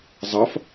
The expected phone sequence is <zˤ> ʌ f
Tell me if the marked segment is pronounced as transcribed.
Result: yes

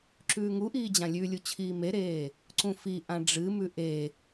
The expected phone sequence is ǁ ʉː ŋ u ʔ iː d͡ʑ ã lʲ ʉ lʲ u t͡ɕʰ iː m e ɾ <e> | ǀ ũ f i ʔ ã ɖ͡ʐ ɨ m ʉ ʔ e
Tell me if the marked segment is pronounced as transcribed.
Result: no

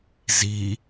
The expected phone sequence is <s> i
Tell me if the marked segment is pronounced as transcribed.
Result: no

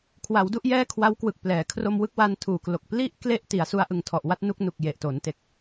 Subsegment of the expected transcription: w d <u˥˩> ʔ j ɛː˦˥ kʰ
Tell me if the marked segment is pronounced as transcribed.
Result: yes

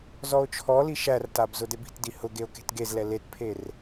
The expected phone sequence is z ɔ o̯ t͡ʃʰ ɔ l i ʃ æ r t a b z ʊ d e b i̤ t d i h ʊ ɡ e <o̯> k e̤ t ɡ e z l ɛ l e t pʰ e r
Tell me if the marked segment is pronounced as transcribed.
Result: yes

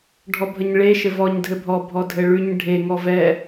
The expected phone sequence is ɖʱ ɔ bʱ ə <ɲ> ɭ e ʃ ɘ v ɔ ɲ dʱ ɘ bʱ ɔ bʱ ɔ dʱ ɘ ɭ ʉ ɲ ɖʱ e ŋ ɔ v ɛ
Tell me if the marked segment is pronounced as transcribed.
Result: yes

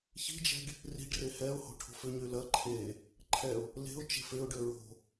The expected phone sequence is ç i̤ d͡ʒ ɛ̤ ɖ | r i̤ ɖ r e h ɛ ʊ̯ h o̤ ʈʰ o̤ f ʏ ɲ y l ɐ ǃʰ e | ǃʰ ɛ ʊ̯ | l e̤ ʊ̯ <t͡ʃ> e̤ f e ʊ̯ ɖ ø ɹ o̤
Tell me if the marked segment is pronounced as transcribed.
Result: yes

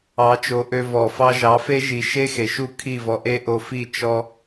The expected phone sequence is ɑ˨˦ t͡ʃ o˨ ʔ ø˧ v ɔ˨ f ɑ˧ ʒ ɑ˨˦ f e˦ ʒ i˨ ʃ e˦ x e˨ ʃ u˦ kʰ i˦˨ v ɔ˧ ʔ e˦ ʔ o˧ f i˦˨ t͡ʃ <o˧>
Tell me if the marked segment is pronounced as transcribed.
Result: no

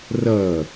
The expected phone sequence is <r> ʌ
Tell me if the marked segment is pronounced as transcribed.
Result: yes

